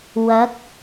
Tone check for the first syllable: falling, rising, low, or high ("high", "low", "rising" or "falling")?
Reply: rising